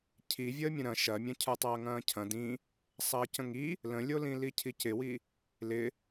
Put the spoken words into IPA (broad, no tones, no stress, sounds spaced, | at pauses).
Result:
cʰ i vʲ əː mʲ ə̃ ɾ ɐ̃ ʃ ɐ mʲ ɐ̃ cʰ ə˞ tˤ ɐː ŋ ɐ̃ː cʰ ɐ̃ d ĩ | sˤ ɐː c ə̃ ŋ i | l ə̃ lʲ o l ĩ l i cʰ i c ɪ w i | l ɪ